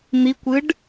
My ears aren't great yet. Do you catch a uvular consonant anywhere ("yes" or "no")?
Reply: no